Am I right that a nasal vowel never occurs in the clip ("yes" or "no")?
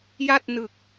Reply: yes